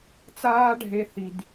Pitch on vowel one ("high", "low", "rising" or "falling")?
high